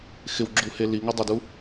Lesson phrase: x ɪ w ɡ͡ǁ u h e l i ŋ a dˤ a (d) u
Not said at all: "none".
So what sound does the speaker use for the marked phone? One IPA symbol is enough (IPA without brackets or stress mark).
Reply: d